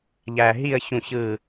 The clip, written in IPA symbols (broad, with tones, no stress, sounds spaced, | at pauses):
ʎ æ˧ ɦ i˥˧ ə̯ ç ũ˥˧ ç ɯ˥˧